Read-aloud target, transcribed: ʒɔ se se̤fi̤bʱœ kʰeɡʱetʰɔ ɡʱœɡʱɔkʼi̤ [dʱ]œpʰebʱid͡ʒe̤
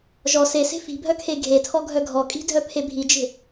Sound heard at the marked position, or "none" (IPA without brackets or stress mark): dʱ